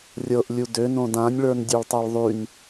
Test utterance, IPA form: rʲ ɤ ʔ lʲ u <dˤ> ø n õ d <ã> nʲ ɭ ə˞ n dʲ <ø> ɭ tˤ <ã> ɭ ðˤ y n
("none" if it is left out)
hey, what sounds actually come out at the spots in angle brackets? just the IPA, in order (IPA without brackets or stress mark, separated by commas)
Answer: d, ã, ø, a